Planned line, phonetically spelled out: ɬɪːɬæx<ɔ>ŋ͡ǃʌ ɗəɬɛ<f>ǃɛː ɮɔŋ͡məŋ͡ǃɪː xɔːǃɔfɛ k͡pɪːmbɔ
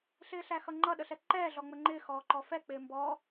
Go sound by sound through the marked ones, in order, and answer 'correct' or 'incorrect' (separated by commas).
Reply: incorrect, incorrect